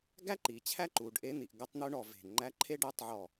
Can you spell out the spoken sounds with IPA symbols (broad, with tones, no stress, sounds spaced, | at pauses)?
ɡ æ˥ ǃ i˩˧ t͡ɕʰ æ˥ ǃ u˩˧ ɖ ʔ e˧˥ n̪ i˩˧ ʔ ɡ ʌ˧˥ tˤ n̪ u˧˥ ɳ ɔ˧˩ v e̤˧˩ ŋ͡ǃ æ˧˥ ǃʰ e˥ ɖ ɛ˧˥ tˤ ʕ ɔ˧˩